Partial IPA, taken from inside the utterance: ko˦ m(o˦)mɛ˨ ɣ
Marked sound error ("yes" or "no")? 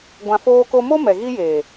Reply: no